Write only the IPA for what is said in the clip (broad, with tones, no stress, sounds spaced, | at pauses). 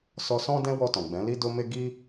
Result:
s ɔ˧ s ɔ̃˦ d ɛ̃˦ w ɔ˧ t ɔ̃˨ ɡ͡b ɛ̃˨˦ l i˦ d o˦ m e˦ ɡ i˦